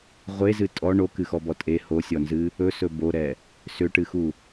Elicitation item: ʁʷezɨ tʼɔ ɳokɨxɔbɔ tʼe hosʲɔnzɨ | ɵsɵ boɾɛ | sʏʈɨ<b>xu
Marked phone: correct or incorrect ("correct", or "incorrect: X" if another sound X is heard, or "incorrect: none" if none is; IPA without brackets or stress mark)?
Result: incorrect: none